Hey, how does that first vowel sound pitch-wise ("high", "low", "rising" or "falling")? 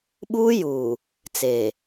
high